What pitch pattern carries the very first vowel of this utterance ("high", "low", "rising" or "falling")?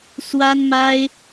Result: high